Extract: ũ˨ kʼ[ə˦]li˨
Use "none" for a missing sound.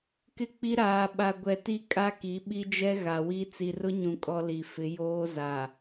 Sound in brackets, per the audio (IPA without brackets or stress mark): ɔ˦